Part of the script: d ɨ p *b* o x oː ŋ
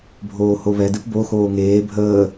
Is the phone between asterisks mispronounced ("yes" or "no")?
no